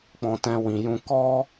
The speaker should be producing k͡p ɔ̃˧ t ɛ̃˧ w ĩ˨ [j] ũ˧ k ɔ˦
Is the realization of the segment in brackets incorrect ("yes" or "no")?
no